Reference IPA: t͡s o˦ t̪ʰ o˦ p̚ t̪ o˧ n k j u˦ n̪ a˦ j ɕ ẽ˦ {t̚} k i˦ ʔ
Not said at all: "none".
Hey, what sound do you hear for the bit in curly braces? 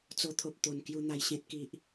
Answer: t̚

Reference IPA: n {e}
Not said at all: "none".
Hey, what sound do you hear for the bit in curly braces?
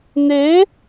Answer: e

